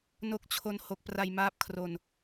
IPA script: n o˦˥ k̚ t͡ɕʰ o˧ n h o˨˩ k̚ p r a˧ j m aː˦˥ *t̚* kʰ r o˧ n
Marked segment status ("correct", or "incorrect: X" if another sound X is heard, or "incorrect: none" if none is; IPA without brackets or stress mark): incorrect: p̚